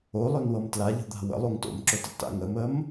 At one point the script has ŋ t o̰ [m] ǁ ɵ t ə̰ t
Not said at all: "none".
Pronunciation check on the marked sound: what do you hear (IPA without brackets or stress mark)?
m